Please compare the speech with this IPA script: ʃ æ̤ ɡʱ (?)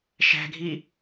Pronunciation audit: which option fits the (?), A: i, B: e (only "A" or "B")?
A